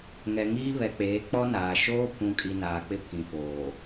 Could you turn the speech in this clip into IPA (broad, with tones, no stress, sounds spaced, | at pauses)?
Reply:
ŋ ɛ˨ ŋ iː˦ β ɛ˨ k͡p eː˨˦ k͡p ɔ˦ n aː˨ ʃ oː˦ pʰ ũ˨ kʼ i˨ n aː˨ k͡p ɪ˦ pʰ ĩ˨ f oː˨